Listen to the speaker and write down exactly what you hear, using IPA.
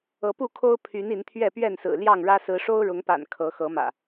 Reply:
ɤ˨˦ p u˥˨ kʰ o˦ ʊ̯ pʰ y˨˦ n i˨˦ n t̪ʰ ɥ ɛ˥˨ p ɥ ɛ˥˨ n s ɹ̩˨˩ l j ɑ˥˨ ŋ ɻ ä˦ s ɹ̩˨˦ ʂ o˦ ʊ̯ ɻ ʊ˨˦ ŋ p a̰˨˩ n kʰ ɤ˨˦ x ɤ˨˦ m ä̰˨˩

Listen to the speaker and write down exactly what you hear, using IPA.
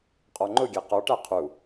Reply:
qʼ ɔ ŋ͡ǃ ʊ ɡʲ ɛ q ɔ ʈ æ qʰ u

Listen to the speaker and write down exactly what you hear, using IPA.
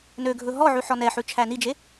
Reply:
n ø ɡʱ ɵ ɦ ɔ ʕ ʉ ħ ɔ n ɛ ħ ʉ t͡ʃʰ æ n i d͡ʒ e

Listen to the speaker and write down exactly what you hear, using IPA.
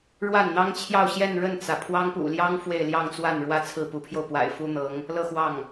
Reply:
ɻ w a˥˩ n n̪ ɑ˥ ŋ t͡ɕʰ j ɑ˥˧ ʊ̯ ɕ j ɛ˥˧ n ɻ ə˥˩ n t͡s ä˩ pʰ w ɑ˥ ŋ p ṵ˨˩ l j ɑ˥ ŋ f w e˥˧ ɪ̯ l j ɑ˥˧ ŋ t͡s w a˥˩ n ɻ w ä˥ t͡sʰ ɹ̩˥˩ p u˧˥ pʰ j o˧ ʊ̯ p w a̰˨˩ ɪ̯ f u˥ n̪ ɤ˧˥ ŋ | l ɤ˥˧ x w ɑ˥˩ ŋ

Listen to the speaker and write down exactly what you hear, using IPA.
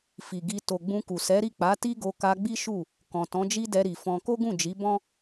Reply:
f i˨ ɡ i˧ t o˨ ɡ͡b ũ˧ k u˨ s ɛ˨˦ ɾ i˦˨ k͡p a˨˦ t i˦ ɡ o˧ k a˧ ɡ͡b i˦ ʃ u˦˨ | k ɔ̃˨ t ɔ̃˨˦ d͡ʒ i˦ d ɛ˧ ɾ i˨ f ɔ̃˧ k o˦ ɡ ũ˦˨ d͡ʒ i˨˦ b ɔ̃˦

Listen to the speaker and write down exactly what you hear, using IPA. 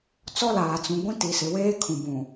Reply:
t͡s ɔ˦ l aː˨ t͡s ũ˨ ɡʷ ĩ˦ t i˨ s ɪ˨ w eː˦ kʰ ũ˨ b ũ˨

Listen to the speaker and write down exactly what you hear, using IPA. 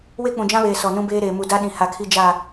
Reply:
w e˦ k͡p ũ˨ d͡ʒ ã˦ β eː˨ s ɔ˨ n ũ˦ b eː˦ ɾ eː˨ m u˨ d a˦ ɗ ĩ˨ h a˨ kʰ i˦ d͡ʒ a˦˨

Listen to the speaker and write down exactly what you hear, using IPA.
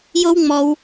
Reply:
j o˦ w ŋ͡m ɔ˧ w

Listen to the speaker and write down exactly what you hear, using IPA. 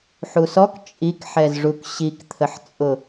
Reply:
ħ u s ɔ k t͡ʃʼ i k ħ ɛ z ʐ u k ɕ i k t̪ʰ ə ħ t͡sʼ ʊ

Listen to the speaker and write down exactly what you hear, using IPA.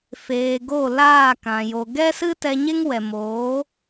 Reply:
f eː˨ ɡ o˦˨ l aː˦˨ k ã˨ j o˨ ɡ ɛ˦ s ɨ˦ t ɛ˧ ɲ e˦ ŋ w ɛ˨ m oː˨˦

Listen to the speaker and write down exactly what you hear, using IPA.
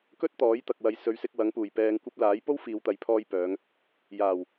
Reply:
k ɵ˥ t̚ t̪ ɔː˨˥ j t̪ ɐ˨ k̚ w ɐ˨˧ j s ɵ˨ ɥ s ɪ˧ k̚ w ɐ˨˥ ŋ p uː˨˩ j p ɛː˨ ŋ kʷ ɐ˧ p̚ l aː˨˥ j p o˥ w f iː˨˧ w t̪ ɐ˨˧ j pʰ ɔː˧ j p œː˨˧ ŋ | j aː˨˩ w

